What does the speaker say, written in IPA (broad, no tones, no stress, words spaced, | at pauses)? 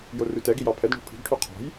jorʉtɛɡi jɑpʰɛdɳo̤ pʰi̤ɡʈʰy qʰɔ̤j